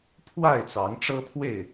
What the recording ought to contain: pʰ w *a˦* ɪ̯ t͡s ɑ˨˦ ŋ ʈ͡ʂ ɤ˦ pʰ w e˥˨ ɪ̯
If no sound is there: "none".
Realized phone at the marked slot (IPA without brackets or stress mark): a˥˨